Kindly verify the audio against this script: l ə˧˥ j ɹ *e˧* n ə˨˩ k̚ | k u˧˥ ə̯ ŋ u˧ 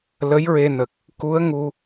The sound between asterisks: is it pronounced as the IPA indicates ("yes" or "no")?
yes